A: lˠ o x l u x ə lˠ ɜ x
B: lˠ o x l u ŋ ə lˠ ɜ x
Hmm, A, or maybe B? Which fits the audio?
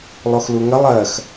B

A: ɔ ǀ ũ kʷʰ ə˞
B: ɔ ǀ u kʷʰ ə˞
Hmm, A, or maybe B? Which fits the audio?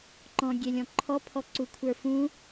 B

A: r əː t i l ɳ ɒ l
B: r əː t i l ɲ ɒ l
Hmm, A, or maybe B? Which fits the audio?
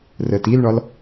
A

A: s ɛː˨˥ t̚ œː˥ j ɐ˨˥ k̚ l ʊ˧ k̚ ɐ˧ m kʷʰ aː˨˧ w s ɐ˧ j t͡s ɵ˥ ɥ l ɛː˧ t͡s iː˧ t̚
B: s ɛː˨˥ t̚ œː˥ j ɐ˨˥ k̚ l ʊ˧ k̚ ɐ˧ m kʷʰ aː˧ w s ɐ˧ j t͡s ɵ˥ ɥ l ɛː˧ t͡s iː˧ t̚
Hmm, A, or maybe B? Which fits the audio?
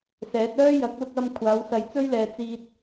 A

